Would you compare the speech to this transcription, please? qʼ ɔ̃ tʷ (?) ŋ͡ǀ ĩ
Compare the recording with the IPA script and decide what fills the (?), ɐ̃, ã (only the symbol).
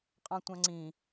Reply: ã